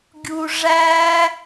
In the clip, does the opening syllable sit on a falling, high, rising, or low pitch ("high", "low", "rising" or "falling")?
low